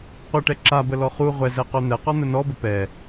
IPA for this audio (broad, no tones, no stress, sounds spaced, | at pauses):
qʷ ə ʈ ɛ ǁ a b ə l ɔ χ u ʁʷ ɛ z ɛ q œ n̪ ɛ q ɔ n̪ ə n ɔ b ə p ɛ